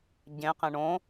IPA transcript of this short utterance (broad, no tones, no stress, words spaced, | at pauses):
ɟẽqẽ ɳõ